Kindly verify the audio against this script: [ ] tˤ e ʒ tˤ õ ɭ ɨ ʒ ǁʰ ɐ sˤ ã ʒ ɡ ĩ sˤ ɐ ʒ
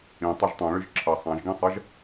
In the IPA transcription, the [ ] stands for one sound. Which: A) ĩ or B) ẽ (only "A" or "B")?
A